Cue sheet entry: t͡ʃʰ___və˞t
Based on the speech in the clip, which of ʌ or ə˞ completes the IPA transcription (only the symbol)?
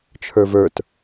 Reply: ə˞